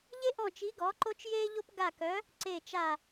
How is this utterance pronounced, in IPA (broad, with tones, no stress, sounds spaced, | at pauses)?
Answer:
ʎ e˥ ʔ ɔ̃˦˨ t͡ʃ i˧˥ ɡ ɔ˧˥ ǃ o˥ t͡ʃ j eː˥ ʎ o˥ p ɡ a˦˨ k œ˧˥ | ǀ e˦˨ t͡ʃ a˦˨